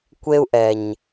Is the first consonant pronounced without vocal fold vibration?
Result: yes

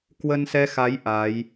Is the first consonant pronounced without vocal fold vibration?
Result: yes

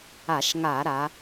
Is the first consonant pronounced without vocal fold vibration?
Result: yes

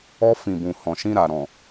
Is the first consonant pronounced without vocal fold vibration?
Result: yes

